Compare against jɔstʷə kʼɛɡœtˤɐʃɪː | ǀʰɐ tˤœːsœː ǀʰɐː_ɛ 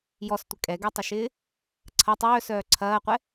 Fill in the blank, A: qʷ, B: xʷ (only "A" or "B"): A